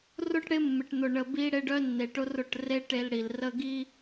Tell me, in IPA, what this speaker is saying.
r ʊ˦ ʈ ɽ ɪ˦ mː ɪ˨ ʈ n̪ ʊ˨ ɳ ə˨ b i˦ ɽ e˦ ɖ œ˦ nː e˨ ʈ ʊ˦ r ʊ˦˨ ʈ r e˦ ʈ e˦ l ɽ i˨ l r ə˦ ɡ i˦

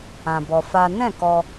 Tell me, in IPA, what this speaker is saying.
ã˧ b ɔ˧ f a˦ n ɛ̃˦˨ k ɔ˧

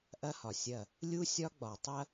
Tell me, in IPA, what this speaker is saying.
ʔ ɐ˦ h ɒ˨ sʲ ɐ˦˨ | lʲ u˦ sʲ ɒ˦ ɡ͡b ɒ˨ tˤ ɐ˦

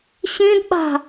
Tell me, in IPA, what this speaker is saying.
ɕ ĩ d ɓ a̤

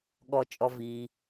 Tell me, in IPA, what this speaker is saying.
ɠ ɔ˩ t͡ʃʼ ɔ˩ v iː˩

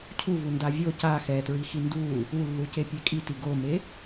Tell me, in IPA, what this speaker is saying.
cʰ u v u n d a vʲ o c a x ɛ t ɹ i x i n d u | u lː u c e pʲ e kʼ i t i ɡ o m e

